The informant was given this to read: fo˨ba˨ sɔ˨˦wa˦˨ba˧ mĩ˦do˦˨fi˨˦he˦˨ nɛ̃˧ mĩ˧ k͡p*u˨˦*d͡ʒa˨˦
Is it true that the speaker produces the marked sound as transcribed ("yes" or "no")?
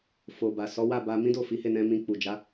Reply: no